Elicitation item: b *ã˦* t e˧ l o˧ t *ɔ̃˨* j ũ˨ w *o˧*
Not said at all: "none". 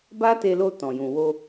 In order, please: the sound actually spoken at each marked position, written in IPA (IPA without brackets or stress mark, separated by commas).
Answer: a˦, ɔ̃˨, o˧